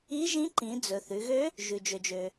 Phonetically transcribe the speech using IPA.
i˧˥ ʒ ĩ˧˥ ǃ ĩ˩˧ d͡z ɵ˩ θ ʉ˩˧ ɣ ø˧˥ | ʒ ʉ˩ d͡ʒ ø˩ d͡ʒ ø˩

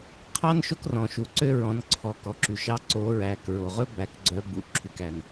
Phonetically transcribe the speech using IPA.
qʰ ɑ˥ n ʃ o˥ k r ɔ̃˨ ʃ u˨ ǀ ø˥ ɹ ɔ̃˧˥ n ǀʰ ɔ˨ k ɔ˨ ǁ y˨ ʃ ɑ˧˥ ǀ o˧˥ ɹ æ˨ k ɹ o˨ ʁ ɵ˥ b æ˧˥ k ɡ͡ǀ œ˧˥ b ṵ˨ ǁʰ y˨ k æ˨ n

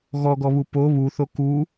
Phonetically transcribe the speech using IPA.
ɣ ɔ ɡ ɔ β u p o β u θ o k u

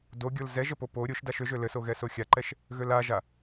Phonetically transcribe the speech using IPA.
d o ɡʲ o l z ɛ ʒ ə p o p o ɾʲ o ʃ d a ʃ ø ʒ ø l ɘ s o ɣ ɛ s o xʲ a ǃ ɛ ʃ | ɣ ø l a ʒ a

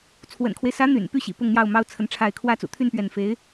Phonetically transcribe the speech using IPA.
t͡sʰ w ə̰˨˩ n kʰ w e˦ ɪ̯ s ä˧˥ n̪ y̰˨˩ n p y˥˩ ɕ ḭ˨˩ p ʊ˥˧ ŋ n̪ j ɑ˥˩ ʊ̯ m ɑ˥ ʊ̯ t͡sʰ ə˧˥ n ʈ͡ʂʰ a˥˩ ɪ̯ kʰ w ä˥ t͡s ṵ˨˩ t̪ʰ y˥˧ n p ɥ ɛ˥˩ n f e˧˥ ɪ̯

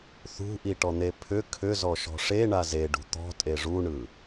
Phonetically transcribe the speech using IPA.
θ ṳ ʔ i ʈ ɔ n̪ e pʰ ʏ kʰ ʏ z ɔ ʃ ɔ̤ ʂ e ɳ a z e ɖ ṳ t̪ ɔ̤ tʼ e ʐ u ɳ ɯ

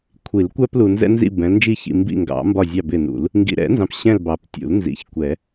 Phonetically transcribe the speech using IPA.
kʷʰ i˨˩˦ l kʷ æ˦ p l u˨ n z ɛ̰˦ n z ḭ˦˨ b ɛ̃˨˦ l n d͡ʒ i˦ ç ḭ˨ m b ḭ˦˨ ŋ ɡ ɑ̰˨˩˦ m b ɒ˦˨ zʲ ɑ˦˨ b ɪ˦˨ n ṵ˨˩˦ l | ŋ ɡ ḭ˨ ɾ ɛ̰˨˩˦ n z ɑ̃˨ p ɕ ɛ̃˦˨ l b ɑ˨ p tʲ ṵ˨˩˦ l n z ḭ˨˦ ç kʷ ɛ˨˩˦

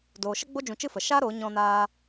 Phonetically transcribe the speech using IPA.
d oː˨ ʃ ə˦ ɡ͡b o˦ d͡ʒ ũ˧ t͡ʃ ɨ˦ f ə˨ ʃ a˦ ɾ oː˨˦ ɲ ɔ̃˧ n aː˧

